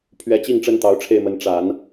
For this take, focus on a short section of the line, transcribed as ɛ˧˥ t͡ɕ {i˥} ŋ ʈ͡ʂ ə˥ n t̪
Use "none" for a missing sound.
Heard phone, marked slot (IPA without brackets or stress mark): i˥˩